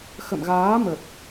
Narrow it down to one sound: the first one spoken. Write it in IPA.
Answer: x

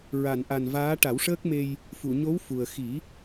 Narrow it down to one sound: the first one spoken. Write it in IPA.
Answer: ɹ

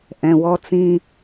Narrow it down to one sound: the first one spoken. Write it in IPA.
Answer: ʔ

